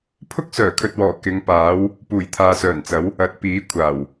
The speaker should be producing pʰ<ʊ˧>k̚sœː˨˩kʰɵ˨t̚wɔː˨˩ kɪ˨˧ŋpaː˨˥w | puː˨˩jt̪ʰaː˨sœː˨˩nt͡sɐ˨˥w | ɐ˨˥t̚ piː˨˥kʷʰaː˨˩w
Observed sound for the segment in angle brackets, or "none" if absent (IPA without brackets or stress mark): ʊ˥